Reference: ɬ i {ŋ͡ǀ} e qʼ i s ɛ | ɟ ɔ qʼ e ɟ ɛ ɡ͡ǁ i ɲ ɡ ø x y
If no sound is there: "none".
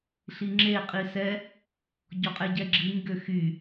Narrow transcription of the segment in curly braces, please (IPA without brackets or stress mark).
ŋ͡ǁ